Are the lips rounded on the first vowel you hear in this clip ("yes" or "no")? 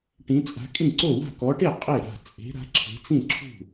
no